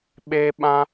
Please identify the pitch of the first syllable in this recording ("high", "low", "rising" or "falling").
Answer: high